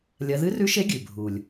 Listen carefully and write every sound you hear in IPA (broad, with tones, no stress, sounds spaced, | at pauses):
lʲ ɐ˧˥ ð ɨ˧˥ r ʉ˧˥ ʃ e˧˥ ɡʲ ʉ˨˩ bʱ u˨˩ lʲ